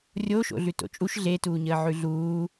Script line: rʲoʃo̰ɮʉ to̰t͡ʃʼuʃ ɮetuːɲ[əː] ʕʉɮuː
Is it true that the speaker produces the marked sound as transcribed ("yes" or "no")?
yes